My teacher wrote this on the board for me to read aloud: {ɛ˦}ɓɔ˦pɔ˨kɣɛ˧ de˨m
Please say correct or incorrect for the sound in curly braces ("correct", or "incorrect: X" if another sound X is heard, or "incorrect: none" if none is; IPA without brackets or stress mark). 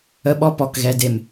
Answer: incorrect: ə˦